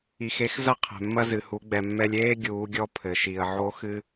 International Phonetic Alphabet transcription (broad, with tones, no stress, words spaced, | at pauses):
i˩xe˩˧xzɐ˧ qʰɛ̤˩mːɐ˧zɨ˩hu˩˧ ɡ͡bɛ˩mːɛ˧lʲeː˥ ɡʲuː˩˧ɡʲɔ˧ pʰɘ˩ʃi˩ə̯ʕo˧˥ xɨ˧